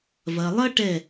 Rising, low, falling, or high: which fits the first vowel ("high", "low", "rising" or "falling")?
low